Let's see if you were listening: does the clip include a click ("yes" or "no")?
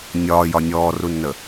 no